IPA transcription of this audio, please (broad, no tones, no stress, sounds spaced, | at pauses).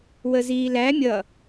w ə z iː l æ mʲ ʌ